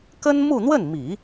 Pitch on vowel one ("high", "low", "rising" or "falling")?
high